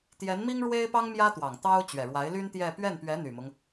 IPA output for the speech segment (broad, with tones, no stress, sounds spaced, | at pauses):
t̪ j ɛ˧˥ n m i˥ ŋ ɻ w e˥ ɪ̯ p ɑ˥ ŋ m j ä˥ t̪ w ɑ˨˩ ŋ t̪ ɑ˥ ʊ̯ t͡ɕ ɥ ɛ˨˩ ɻ w a˧˥ ɪ̯ l y˥ n t̪ j ɛ˥˧ p ɥ ɛ˥˩ n p ɥ ɛ˧˥ n̪ y˨˩ m ʊ˦ ŋ